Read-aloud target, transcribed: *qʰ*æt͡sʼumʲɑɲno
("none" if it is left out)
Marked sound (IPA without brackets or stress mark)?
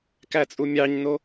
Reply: k